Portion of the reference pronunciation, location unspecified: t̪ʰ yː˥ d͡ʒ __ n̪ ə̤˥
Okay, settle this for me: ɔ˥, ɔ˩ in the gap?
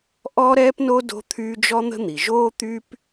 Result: ɔ˥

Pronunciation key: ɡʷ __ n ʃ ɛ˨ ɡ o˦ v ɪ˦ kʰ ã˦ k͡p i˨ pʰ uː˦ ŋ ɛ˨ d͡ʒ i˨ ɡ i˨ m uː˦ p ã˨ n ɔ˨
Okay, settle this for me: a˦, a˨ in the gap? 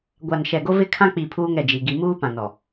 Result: a˨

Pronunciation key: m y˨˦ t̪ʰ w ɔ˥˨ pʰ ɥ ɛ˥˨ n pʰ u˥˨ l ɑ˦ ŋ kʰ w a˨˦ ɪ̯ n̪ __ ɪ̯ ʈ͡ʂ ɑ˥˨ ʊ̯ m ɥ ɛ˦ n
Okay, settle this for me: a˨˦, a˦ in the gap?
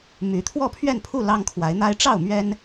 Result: a˦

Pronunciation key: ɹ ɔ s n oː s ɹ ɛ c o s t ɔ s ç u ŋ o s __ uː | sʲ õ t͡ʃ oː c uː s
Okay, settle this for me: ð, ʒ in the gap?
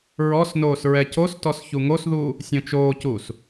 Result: ð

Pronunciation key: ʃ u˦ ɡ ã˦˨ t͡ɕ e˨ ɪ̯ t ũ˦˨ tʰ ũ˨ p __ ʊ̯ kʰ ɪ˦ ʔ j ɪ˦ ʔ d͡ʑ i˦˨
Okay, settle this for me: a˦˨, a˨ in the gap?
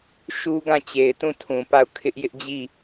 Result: a˦˨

